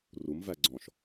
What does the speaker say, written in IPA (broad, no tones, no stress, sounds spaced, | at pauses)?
r u m v æ ɡ͡ǀ ɔ̃ ʃ